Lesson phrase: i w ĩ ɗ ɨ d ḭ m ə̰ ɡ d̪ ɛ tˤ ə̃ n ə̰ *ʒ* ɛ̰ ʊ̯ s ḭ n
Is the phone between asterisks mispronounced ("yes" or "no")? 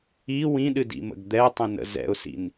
yes